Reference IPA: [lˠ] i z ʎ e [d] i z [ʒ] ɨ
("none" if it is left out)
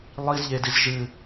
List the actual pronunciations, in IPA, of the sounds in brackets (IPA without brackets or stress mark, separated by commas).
lˠ, d, ʒ